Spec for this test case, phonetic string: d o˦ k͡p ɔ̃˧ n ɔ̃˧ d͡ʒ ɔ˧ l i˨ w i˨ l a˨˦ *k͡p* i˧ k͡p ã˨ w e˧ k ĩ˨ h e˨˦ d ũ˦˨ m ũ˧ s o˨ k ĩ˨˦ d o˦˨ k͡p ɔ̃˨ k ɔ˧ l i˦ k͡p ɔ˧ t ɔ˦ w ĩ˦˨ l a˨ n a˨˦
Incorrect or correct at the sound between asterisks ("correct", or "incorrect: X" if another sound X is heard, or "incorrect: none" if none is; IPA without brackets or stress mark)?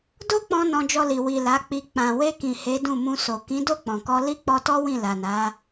correct